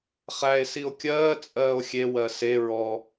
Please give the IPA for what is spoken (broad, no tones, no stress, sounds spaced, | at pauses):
χ æ e̯ s i o̯ kʲ ɜː t͡sʼ ɜː o̯ xʲ e w ɜ s e ɹ ɔ